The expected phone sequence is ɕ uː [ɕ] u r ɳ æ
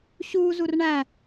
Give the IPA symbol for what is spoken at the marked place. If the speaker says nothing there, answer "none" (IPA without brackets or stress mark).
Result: z